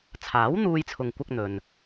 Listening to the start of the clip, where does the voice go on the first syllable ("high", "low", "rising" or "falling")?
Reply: rising